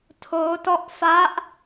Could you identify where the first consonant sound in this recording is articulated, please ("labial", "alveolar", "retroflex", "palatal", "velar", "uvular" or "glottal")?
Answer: alveolar